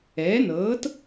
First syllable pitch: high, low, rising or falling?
rising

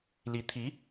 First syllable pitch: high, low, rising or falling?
rising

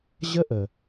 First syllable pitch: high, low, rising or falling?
high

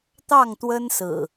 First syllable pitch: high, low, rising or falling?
falling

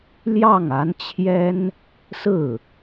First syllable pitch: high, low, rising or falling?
falling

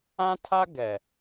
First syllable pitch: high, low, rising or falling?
high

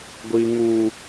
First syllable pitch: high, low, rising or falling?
high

